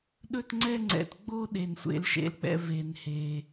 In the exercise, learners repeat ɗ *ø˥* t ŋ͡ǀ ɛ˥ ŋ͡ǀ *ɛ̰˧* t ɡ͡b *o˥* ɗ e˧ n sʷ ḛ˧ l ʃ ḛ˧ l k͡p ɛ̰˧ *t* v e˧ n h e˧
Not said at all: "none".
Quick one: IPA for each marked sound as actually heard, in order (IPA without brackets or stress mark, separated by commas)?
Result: ɵ˥, ɛ̰˧, o˥, none